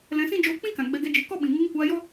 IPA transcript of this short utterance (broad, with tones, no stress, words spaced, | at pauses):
lɛ̃˧sĩ˦ d͡ʒoː˧k͡pĩ˦kã˨ ɡ͡bɛ˧ɡɛ˧d͡ʒɨ˨˦ kɔ˦ɓĩ˨ ŋɨ˧ŋkʷaː˧jɔ˦